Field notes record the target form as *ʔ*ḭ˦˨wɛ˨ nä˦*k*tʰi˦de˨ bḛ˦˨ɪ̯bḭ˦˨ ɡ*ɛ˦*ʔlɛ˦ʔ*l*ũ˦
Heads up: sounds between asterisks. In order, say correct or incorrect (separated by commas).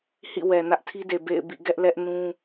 incorrect, incorrect, correct, incorrect